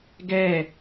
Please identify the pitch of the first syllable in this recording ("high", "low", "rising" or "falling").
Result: falling